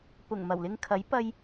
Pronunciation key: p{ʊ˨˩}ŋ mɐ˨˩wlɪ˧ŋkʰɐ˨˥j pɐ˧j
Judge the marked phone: correct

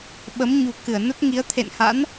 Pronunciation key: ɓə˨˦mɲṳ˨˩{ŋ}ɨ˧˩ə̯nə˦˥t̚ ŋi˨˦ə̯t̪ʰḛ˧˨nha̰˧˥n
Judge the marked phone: incorrect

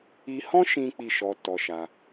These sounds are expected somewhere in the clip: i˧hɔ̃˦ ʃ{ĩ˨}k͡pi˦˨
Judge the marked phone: incorrect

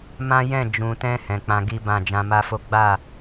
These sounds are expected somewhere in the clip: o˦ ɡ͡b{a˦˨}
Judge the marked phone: correct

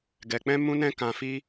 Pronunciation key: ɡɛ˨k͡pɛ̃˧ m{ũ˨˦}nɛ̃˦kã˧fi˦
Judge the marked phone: incorrect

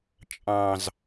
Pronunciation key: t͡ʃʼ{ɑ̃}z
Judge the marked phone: correct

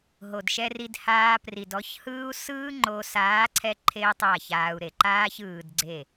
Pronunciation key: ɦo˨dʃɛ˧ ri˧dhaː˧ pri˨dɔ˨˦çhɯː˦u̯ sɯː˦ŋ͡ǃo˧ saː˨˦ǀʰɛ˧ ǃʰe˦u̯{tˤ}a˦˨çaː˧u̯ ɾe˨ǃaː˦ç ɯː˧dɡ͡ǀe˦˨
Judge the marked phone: correct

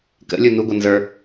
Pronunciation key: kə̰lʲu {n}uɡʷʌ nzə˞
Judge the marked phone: correct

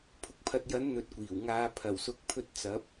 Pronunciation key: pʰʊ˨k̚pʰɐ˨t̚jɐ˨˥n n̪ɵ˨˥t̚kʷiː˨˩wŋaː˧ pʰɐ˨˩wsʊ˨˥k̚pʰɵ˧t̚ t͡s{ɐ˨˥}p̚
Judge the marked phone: correct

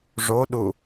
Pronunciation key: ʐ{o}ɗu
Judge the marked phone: correct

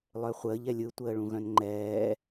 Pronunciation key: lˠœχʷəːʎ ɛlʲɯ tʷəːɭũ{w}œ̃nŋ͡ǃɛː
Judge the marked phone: incorrect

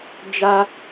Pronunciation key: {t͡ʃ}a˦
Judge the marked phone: incorrect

